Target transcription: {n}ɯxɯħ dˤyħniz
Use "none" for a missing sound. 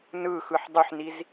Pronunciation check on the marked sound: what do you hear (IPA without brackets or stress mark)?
n